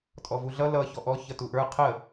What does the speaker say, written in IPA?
tʼɔvuɮʌ lʌ çɔʔɔ çʌtuʔə˞ qʰə

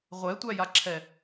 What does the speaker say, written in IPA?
ʁʷɛtʷæjaǁʰɛ

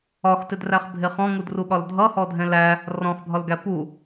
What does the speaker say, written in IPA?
ɒxtɪdræχbʱɪ χɔ̃ŋudruɠɒl dʱʌhɔdʱɛ̃ læ | rɔ̃χbʱɒlɡæ pu

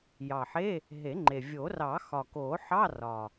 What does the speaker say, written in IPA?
jɑ˨˩ħe˧˥˧ | ɦe˨˩˦ŋ͡ǃe˨˩ vʲo˨˩˦rɑ˨˩˦ xɒ˨˩ko˨˩˦ħɑ˧˥˧ rɒ˨˩

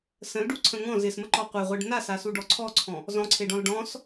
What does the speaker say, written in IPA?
sə̃lɖuǀʰə̃ ŋɔ̃z ɪsməǃɔ qʷeʁʷeɖ nasasuɖɔ ǀʰɔǀʰɔ̃ | zɔ̃ǀʰeɖɔ̃l ɖɔ̃s

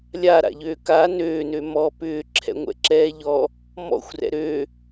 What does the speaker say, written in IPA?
lʲaɾa̰ʎøː ka nøːnø mɔ pʏːǁʰɛ̰ŋʷɛ̰ǁɛː ʎɔ | mɔ̰xʷrɛ̰ ɾø

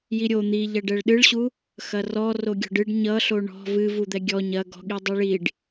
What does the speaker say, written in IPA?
jiɾʲo n̪iʎɐ ɖɛɭɗɨɭɕu | xɐrɔ roɡʲɔ̤ɖɨɖ ɲʌɬo ɳɔ̤ vɨ vud̪ɛɡʲɔ ɲɐ ɡɔ̤ɠi dˤiɭiɖ

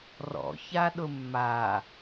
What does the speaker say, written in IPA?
rɔ̰ çaɗʊmːa

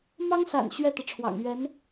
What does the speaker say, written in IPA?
mɑ˥ŋsa̰˨˩n ɕɥɛ˥˩t̪ɤ˩ʈ͡ʂʰwɑ̰˨˩ŋ ɥɛ˧˥n

